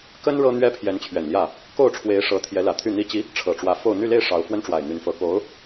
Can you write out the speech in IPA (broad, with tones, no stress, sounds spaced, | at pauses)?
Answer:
k ə˥ n ɻ ɤ˥ n̪ ɥ ɛ˥ pʰ j ɛ˧˥ n t͡ɕʰ ɥ ɛ˨˩ n l j ä˥˩ | k o˥˩ ʊ̯ ʈ͡ʂʰ w e˧˥ ɪ̯ ʂ ɤ˧˥ t̪ʰ j ɛ˧˥ l ä˨˩ t̪ʰ y˥˩ n̪ i˥ t͡ɕ i˧˥ | ʈ͡ʂʰ ɤ˨˩ ʈ͡ʂ w ä˧˥ f o˥˧ ʊ̯ n̪ y˥˧ l e˥˩ ɪ̯ ʂ ɑ˧˥ ʊ̯ f w ə˥ n ʈ͡ʂ w a˨˩ ɪ̯ n̪ y˧˥ n f ɤ˧˥ k o˧˥ ʊ̯